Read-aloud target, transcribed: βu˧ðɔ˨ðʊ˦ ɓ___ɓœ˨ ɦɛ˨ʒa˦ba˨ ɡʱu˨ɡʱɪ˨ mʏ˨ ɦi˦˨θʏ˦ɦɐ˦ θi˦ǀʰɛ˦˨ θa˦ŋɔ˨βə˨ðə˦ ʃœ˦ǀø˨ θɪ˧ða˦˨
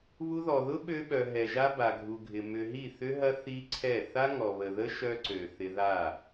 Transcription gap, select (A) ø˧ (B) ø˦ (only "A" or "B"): A